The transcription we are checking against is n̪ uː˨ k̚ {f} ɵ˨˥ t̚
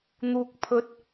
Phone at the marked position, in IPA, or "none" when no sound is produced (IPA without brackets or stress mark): pʰ